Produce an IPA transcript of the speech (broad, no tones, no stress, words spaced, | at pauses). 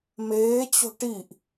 meːt͡ɕo̤ ʈiʔ